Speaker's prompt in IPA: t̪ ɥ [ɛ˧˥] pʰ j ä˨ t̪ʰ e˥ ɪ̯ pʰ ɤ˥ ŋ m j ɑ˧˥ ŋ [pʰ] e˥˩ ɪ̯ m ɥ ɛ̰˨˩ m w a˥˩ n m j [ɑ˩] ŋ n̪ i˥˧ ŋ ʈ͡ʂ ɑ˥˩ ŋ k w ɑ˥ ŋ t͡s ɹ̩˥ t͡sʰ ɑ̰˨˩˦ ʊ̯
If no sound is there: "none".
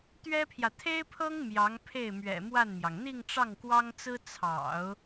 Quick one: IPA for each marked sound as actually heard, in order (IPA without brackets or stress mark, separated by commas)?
ɛ˥, pʰ, ɑ˩